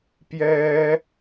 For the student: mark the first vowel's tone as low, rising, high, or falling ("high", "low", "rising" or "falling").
high